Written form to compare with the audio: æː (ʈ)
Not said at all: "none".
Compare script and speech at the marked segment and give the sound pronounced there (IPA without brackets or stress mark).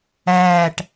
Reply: ʈ